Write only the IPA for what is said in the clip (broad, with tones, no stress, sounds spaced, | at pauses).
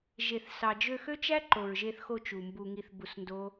ʒ e˨ θ s ɑ˨ d͡ʒ ø˧ x ø˦ t͡ʃ æ˦ ǃ o˨ ɹ ʒ e˧ θ x o˧ t͡ʃ u˨ m b u˧ ŋ i˧ θ b u˧ s n d o˦